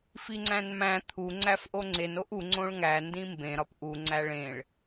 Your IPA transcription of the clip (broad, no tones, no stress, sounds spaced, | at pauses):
f i ŋ͡ǀ æ̃ n m æ̃ t̪ʰ u ŋ͡ǀ æ f ʔ o ŋ͡ǀ e n o ʔ u ŋ͡ǀ õ ɭ ŋ æ n d ĩ m b ẽ ɾ ɒ p ʔ u ŋ͡ǀ æ ɭ ẽ ɭ